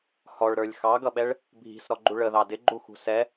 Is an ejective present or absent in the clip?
absent